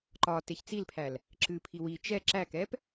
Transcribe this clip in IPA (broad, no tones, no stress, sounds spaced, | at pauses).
ǃ ɒ t e ç t͡s i l pʰ æ l | ǁ ɨ pʰ i w i t͡ʃ ɛ ǁ æ k ɛ p